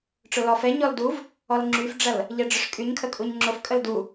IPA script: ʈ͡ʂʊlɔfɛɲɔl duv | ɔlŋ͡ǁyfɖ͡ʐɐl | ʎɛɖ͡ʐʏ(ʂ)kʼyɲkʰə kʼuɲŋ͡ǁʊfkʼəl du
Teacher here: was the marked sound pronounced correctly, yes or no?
yes